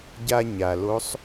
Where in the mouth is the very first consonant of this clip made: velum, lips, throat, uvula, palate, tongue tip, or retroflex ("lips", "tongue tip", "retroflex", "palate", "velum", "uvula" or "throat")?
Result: palate